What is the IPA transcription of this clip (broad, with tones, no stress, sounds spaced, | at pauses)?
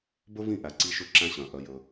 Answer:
b ɵ˦ v ĩ˦˨ ʔ æ˨ ǀ i˦ ʃ ɵ˦ ǁ æ̃˦ ɕ œ̃˨ ʔ œ˦ j ɵ˦